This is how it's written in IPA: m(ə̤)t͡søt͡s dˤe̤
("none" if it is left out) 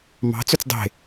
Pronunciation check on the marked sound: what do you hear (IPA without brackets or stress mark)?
ɑ̤